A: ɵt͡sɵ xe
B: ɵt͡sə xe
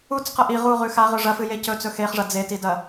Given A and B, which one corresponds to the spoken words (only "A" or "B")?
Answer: A